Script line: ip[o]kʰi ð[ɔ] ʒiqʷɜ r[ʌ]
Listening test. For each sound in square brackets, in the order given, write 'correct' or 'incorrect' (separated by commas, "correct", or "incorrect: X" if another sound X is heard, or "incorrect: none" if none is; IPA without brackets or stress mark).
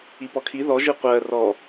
incorrect: ɔ, correct, incorrect: ɔ